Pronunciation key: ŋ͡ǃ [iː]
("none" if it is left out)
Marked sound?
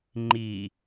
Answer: iː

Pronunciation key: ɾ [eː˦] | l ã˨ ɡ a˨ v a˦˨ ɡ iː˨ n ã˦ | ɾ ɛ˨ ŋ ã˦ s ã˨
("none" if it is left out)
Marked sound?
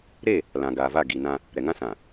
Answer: eː˦˨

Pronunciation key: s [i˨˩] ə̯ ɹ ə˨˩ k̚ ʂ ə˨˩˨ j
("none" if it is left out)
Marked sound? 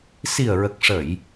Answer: i˨˩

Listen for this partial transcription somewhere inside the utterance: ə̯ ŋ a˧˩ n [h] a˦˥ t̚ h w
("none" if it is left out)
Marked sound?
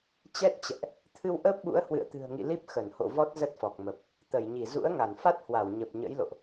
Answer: f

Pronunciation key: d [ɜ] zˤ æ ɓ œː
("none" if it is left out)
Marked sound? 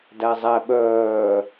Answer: æ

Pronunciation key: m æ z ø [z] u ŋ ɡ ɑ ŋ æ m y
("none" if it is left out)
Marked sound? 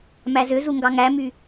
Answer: z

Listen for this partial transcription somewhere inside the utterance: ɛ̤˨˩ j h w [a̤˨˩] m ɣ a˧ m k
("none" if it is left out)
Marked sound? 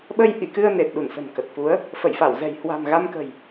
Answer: a̤˨˩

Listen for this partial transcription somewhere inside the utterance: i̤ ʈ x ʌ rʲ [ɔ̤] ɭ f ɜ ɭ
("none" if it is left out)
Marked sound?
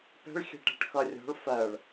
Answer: ɔ̤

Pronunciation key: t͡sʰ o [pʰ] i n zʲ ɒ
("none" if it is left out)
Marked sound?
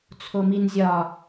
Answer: m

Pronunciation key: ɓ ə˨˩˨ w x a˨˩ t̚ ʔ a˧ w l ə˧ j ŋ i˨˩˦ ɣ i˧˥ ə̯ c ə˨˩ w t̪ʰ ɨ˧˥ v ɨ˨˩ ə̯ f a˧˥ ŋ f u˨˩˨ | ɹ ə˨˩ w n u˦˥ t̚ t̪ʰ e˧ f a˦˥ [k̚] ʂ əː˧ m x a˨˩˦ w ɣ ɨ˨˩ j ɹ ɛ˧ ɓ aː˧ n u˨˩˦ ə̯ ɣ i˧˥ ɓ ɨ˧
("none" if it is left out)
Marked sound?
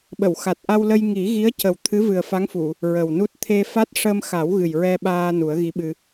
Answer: t̚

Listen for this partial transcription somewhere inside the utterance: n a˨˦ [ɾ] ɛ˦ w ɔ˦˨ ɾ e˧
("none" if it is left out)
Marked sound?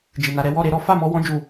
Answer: ɾ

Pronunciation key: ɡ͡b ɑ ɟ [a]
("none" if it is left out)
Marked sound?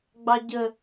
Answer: ə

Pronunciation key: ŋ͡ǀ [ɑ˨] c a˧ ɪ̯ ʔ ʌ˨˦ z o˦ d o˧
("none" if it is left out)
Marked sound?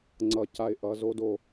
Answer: ʌ˨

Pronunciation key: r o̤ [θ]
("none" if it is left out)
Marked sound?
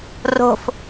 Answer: f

